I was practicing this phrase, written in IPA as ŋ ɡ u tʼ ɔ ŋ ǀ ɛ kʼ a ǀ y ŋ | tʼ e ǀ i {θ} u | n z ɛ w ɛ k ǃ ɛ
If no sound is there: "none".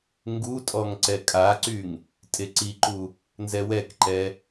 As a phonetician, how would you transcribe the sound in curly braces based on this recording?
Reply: ǃ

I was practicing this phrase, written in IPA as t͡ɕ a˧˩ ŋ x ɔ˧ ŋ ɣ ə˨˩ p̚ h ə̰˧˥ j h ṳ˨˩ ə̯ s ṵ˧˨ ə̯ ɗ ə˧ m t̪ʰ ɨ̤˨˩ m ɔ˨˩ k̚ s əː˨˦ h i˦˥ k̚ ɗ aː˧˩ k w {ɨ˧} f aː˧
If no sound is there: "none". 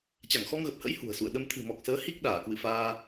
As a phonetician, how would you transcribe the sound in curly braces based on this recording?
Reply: ɨ̰˧˨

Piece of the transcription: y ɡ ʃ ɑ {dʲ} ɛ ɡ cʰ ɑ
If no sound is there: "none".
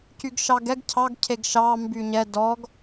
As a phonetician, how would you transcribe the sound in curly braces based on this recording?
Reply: ɡ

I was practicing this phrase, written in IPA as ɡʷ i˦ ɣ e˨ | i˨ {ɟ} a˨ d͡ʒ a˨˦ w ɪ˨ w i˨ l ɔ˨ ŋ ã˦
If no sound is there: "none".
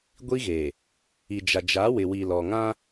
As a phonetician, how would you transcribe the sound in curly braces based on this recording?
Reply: d͡ʒ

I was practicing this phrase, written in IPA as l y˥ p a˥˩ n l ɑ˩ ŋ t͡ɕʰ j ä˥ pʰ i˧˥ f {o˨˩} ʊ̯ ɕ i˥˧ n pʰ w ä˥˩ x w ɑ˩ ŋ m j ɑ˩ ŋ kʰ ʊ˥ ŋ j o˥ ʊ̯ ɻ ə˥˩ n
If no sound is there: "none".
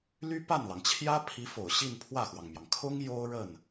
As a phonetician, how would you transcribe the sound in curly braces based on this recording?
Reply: o˨˩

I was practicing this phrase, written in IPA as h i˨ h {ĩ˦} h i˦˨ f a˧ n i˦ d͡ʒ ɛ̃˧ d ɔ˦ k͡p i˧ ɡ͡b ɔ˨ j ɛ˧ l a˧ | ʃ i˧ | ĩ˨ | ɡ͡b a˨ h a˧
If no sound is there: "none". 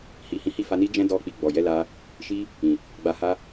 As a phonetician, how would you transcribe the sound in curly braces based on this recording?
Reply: ĩ˨˦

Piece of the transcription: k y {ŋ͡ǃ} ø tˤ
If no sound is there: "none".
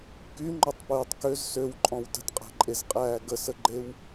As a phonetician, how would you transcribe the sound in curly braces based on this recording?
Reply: ŋ͡ǃ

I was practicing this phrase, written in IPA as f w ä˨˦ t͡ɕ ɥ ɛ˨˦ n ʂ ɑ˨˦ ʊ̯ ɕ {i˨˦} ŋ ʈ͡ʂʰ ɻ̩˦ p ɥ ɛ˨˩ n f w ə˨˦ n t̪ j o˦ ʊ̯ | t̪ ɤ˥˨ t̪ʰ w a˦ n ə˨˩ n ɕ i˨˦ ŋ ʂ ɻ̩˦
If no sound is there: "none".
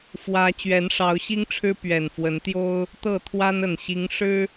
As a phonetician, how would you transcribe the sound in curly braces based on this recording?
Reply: i˦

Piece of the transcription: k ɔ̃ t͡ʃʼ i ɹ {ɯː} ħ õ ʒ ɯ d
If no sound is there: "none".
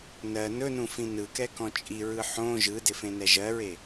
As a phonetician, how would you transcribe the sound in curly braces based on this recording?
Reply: ɯ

